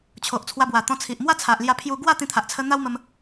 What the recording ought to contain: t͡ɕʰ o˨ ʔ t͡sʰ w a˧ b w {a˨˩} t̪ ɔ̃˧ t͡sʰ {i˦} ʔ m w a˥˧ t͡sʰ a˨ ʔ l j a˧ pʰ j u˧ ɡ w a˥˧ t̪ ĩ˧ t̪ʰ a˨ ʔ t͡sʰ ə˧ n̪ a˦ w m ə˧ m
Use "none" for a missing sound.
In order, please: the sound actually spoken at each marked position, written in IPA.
a˨˩, i˨

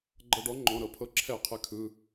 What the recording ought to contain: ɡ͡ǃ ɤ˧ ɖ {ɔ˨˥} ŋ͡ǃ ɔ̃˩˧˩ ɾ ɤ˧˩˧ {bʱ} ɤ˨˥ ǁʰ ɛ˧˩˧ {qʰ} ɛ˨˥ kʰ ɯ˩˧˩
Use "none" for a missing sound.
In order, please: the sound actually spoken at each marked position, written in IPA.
ɔ˨˥, pʰ, qʰ

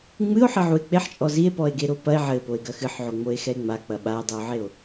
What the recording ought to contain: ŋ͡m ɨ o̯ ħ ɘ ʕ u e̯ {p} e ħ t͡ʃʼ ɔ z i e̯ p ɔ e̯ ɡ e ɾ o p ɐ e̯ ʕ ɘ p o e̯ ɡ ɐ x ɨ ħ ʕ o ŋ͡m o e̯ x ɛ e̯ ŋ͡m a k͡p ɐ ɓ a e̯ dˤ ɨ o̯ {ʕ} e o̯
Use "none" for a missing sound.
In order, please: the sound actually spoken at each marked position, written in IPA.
k͡p, ʕ

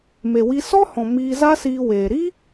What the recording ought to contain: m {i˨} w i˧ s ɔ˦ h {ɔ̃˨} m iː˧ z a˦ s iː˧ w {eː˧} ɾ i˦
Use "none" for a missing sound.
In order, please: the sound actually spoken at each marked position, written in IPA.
e˨, ɔ̃˨, eː˨

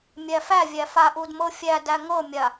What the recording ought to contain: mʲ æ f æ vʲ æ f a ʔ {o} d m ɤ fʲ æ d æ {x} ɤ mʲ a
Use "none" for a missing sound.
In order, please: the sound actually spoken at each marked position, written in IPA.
u, ŋ

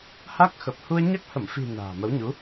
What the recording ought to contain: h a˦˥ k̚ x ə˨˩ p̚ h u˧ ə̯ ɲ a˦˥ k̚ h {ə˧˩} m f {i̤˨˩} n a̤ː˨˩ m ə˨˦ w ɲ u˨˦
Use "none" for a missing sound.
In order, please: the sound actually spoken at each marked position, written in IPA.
ə˧˩, i̤˨˩

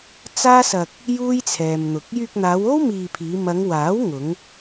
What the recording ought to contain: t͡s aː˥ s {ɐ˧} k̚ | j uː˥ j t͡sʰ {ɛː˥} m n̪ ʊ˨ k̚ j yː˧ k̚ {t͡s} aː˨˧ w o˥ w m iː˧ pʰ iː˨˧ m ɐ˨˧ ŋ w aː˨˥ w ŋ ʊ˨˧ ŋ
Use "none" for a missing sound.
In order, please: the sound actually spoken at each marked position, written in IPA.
ɐ˧, ɛː˨, n̪

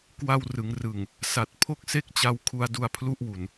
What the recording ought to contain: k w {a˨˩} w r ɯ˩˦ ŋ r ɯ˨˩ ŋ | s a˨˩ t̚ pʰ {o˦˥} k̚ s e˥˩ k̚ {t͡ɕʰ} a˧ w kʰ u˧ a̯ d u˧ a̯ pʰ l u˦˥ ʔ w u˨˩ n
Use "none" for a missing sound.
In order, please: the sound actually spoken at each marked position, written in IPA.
a˧, o˥˩, t͡ɕ

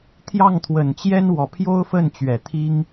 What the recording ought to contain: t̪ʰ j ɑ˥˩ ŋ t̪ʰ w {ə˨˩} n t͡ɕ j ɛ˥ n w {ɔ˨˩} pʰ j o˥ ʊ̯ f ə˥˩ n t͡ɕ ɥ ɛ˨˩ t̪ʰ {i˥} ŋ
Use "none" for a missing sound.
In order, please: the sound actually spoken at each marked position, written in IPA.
ə˨˩, ɔ˨˩, i˥

